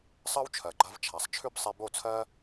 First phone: sˤ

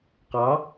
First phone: q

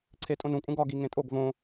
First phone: ǀʰ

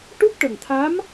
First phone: ʈ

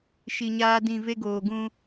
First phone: ʃ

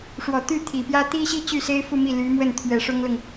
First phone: ʂ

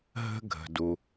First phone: ɦ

